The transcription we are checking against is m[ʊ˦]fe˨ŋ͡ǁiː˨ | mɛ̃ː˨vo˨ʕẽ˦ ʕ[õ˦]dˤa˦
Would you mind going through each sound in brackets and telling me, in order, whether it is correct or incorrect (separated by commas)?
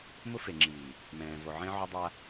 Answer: correct, incorrect